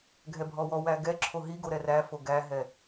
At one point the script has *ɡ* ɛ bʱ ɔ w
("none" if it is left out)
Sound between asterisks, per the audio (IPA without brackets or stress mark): ɡʱ